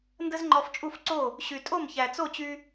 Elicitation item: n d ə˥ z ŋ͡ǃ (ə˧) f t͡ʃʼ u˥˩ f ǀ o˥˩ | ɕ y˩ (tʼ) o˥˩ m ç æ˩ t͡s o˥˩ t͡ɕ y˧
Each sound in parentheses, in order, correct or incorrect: incorrect, correct

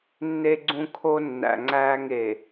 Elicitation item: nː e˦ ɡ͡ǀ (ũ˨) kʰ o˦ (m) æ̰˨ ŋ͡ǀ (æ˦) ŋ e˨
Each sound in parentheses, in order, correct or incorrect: incorrect, incorrect, incorrect

